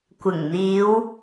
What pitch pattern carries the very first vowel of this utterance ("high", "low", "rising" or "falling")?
low